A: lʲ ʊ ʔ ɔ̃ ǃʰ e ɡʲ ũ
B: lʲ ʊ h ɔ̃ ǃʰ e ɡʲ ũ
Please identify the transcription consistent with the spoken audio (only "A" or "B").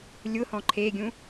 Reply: B